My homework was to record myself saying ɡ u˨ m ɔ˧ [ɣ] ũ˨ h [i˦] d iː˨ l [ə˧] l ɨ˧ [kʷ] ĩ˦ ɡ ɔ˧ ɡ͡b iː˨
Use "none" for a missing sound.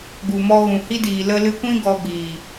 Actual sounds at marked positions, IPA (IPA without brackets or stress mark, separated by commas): ɣ, i˦, ə˧, kʷ